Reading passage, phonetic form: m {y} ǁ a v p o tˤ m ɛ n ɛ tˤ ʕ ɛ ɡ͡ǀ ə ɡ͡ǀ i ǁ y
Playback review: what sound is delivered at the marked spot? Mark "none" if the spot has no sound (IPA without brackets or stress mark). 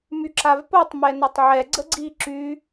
y